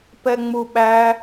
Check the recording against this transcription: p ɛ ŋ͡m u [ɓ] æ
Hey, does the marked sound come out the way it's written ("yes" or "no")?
yes